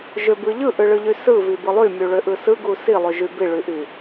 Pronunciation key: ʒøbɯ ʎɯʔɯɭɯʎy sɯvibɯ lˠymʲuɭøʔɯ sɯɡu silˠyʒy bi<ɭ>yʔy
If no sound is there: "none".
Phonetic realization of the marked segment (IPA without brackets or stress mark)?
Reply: ɭ